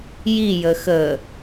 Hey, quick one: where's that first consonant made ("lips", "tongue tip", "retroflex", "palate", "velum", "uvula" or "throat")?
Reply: palate